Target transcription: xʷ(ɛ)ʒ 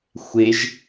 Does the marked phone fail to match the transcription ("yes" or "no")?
yes